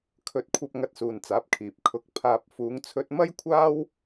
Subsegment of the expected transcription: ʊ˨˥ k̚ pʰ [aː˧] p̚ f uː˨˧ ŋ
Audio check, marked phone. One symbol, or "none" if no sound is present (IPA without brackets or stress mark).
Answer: aː˧